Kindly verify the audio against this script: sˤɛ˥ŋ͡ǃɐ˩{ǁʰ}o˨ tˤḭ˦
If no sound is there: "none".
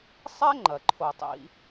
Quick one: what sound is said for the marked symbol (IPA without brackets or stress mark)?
ǃʰ